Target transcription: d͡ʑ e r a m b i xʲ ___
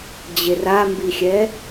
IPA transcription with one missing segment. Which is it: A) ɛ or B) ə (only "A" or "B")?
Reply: A